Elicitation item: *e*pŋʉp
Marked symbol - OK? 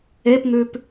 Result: yes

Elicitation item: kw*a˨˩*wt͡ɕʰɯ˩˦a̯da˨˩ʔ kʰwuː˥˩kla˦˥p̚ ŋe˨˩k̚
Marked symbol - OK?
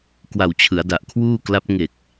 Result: yes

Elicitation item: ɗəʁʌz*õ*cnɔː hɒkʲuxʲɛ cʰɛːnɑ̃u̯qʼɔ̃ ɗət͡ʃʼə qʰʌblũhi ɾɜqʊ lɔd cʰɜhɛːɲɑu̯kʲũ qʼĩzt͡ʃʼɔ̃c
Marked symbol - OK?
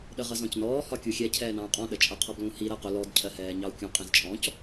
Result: no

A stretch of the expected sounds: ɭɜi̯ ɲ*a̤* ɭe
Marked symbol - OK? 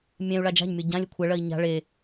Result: yes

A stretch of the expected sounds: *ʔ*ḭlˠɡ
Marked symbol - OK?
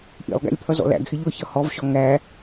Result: yes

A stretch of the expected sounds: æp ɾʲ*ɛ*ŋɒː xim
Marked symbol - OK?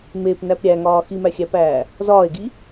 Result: no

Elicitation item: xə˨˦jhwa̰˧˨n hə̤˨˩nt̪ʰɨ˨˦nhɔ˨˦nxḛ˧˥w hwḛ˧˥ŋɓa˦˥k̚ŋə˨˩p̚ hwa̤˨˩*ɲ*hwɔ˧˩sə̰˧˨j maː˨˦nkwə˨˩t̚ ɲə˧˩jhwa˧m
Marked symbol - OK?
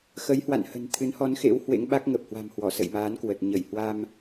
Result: no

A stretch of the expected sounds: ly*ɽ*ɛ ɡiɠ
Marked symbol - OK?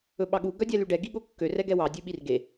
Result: no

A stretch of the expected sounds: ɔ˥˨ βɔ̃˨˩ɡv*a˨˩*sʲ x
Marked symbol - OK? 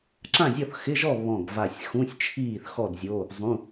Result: yes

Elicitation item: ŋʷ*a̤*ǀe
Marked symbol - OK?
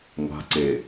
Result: yes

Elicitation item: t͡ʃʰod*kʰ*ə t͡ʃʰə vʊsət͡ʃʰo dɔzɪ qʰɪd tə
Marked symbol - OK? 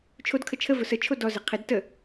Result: yes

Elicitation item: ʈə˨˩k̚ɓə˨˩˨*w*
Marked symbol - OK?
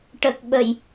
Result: no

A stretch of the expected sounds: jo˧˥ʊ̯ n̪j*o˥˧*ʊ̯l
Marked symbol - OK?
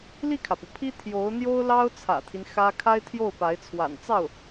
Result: no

